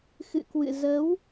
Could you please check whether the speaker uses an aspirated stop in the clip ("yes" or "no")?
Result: no